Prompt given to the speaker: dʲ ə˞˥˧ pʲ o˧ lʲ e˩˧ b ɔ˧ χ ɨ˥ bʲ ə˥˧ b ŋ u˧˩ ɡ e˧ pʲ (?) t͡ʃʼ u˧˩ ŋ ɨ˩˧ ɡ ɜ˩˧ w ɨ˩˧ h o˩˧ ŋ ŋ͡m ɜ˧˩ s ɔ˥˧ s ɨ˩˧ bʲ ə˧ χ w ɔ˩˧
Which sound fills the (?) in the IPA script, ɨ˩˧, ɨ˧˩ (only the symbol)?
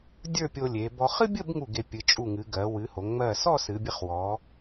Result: ɨ˩˧